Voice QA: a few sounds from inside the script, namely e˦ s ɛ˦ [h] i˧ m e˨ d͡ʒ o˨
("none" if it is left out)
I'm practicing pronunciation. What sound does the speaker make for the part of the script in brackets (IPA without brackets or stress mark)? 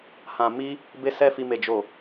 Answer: f